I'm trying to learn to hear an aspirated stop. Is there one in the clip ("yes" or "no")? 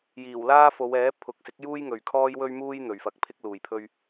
yes